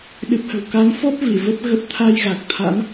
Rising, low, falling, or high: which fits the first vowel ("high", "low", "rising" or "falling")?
low